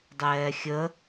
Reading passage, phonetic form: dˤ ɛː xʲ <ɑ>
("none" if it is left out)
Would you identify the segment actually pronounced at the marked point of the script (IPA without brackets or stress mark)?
ə